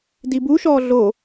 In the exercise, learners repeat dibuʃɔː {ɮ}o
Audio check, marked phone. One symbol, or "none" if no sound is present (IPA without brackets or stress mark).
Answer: ɮ